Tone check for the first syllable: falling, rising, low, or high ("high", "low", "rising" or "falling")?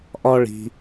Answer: high